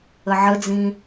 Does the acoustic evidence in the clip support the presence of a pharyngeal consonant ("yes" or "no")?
yes